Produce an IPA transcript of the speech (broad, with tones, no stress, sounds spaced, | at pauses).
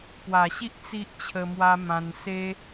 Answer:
p w a˨˩ ɕ i˦ ʔ t͡s i˦ ʔ t͡ɕʰ ə˧ m w a˦ m ã˧ n s e˦